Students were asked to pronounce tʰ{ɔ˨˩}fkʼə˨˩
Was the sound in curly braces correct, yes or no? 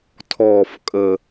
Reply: yes